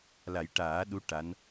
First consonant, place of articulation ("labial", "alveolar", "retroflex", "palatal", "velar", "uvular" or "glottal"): alveolar